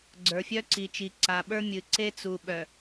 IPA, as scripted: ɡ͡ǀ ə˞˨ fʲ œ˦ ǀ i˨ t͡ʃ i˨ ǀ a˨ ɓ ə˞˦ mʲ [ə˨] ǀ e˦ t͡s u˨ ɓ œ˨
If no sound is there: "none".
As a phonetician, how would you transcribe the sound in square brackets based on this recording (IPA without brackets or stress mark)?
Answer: ɨ˨